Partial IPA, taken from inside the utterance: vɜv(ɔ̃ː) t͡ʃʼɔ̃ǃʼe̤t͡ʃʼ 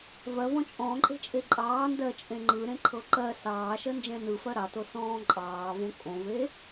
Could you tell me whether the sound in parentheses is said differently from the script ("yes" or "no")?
yes